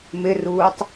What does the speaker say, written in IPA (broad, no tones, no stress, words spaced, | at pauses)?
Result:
mɪruːtˤ